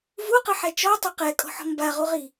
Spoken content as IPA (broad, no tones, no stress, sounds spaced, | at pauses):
v u q ɨ ħ ɛ t͡ʃ ɔ tˤ u q ɛ kʼ ɔ̤ ħ ɔ̤ m b a ʁ u ʁ i